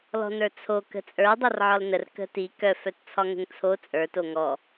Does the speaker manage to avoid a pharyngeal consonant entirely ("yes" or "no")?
no